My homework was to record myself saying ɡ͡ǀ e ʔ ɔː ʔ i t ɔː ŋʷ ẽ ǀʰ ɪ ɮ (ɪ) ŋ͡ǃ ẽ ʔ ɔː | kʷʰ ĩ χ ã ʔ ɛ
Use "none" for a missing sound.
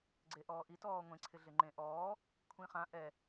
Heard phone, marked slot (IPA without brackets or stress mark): ɪ